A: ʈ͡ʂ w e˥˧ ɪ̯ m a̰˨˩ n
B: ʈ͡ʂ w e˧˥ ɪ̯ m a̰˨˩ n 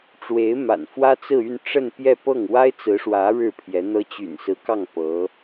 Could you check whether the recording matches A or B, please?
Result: B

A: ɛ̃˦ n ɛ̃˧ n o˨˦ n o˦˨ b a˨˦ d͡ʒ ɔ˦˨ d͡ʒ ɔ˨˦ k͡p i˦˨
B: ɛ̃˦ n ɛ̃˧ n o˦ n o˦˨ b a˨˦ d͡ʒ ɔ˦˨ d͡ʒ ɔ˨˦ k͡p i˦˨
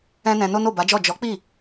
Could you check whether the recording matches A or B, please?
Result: B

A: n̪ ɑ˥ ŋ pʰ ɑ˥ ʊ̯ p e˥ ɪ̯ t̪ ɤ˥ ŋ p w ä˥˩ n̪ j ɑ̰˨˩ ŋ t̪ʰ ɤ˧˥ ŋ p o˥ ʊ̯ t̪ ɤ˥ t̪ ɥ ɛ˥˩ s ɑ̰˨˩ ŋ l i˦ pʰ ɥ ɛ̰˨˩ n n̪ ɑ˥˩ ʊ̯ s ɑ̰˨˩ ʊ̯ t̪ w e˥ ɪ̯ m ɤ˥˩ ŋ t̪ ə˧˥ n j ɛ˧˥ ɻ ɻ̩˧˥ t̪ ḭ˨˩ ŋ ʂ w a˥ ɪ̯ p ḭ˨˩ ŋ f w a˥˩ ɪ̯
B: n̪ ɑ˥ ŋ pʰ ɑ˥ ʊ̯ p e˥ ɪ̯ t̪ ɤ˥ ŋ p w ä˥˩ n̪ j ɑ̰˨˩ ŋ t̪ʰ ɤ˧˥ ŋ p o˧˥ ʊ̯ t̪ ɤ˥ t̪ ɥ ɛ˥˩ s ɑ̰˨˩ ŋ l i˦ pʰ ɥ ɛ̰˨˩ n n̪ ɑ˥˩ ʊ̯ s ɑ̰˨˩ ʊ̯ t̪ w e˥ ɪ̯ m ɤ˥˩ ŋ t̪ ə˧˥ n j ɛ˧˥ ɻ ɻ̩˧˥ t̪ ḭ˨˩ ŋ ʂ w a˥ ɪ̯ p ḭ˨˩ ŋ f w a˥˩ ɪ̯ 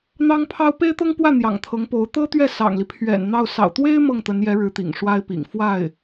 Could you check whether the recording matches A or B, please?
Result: B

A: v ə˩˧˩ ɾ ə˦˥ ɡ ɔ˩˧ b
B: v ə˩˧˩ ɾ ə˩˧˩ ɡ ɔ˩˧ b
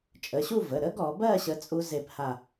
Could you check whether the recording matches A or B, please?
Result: A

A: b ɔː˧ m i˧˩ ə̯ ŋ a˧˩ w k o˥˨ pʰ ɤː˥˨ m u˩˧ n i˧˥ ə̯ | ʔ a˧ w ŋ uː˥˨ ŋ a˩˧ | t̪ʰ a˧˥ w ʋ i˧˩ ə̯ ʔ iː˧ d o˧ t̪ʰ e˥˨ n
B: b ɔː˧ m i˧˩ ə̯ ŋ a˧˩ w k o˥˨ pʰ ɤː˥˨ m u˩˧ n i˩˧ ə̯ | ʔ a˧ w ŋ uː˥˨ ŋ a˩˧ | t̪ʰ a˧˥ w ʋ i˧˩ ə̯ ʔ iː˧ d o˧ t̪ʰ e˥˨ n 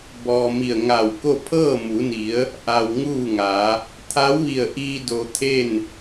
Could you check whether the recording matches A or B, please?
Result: B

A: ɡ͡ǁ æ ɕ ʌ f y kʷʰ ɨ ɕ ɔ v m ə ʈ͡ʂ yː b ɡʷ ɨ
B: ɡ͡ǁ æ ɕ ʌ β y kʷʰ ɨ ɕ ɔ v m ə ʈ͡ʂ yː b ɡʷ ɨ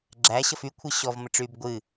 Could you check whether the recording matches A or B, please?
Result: A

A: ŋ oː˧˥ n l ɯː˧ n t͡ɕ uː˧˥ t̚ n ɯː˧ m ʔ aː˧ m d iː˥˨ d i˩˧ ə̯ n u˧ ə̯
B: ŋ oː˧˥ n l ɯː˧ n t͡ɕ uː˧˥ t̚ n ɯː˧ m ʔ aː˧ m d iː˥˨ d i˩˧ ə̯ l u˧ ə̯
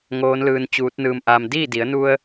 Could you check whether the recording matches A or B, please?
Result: A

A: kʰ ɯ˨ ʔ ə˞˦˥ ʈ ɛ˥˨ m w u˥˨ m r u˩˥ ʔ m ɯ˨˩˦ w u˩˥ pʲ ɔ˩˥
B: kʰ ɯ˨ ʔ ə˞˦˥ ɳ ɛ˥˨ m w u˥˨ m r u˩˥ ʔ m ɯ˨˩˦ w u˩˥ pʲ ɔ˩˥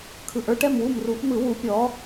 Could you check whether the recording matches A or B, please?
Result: A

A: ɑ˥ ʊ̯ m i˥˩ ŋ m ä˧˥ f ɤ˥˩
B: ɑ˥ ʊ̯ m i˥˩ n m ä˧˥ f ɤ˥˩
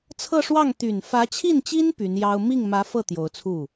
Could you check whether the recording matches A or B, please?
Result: A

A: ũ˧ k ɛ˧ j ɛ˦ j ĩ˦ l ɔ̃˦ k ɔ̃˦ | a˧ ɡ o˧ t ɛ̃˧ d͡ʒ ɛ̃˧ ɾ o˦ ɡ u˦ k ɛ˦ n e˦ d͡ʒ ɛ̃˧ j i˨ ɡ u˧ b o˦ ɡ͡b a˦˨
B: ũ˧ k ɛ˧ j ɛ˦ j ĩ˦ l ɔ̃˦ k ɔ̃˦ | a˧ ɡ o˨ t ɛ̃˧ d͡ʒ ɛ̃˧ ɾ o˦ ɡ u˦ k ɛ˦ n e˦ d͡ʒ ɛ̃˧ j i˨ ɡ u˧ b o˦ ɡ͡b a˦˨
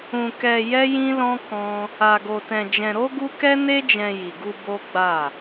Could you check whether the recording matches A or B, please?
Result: A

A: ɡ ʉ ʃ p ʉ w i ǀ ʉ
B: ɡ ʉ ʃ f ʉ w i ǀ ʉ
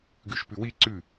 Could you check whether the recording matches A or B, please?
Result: A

